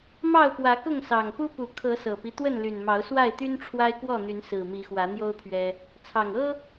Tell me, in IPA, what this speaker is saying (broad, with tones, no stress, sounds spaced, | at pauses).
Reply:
m ɑ˥˨ ʊ̯ p w ä˨˦ k ʊ˥˨ ŋ s ɑ˨˩ ŋ p u˦ p u˨˩ kʰ ɤ˨˦ s ɤ˨˩ p i˦ t̪ w ə˥˨ n l y˨˩ n m ɑ˨˦ ʊ̯ s w a˥˨ ɪ̯ t̪ y˦ n ʈ͡ʂʰ w a˦ ɪ̯ k w ɔ˥˨ n̪ y˨˦ n s ɹ̩˨˩ m i˨˦ x w ä˨˦ n̪ j o˦ ʊ̯ pʰ ɥ ɛ˦ | t͡sʰ ɑ˨˩ ŋ ɤ˦